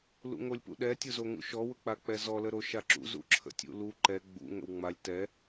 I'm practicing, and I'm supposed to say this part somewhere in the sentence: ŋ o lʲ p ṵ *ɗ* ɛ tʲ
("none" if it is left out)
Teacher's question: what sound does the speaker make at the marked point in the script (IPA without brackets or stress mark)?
ɗ